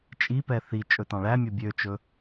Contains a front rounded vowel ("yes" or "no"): yes